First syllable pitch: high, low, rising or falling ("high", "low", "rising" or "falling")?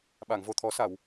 low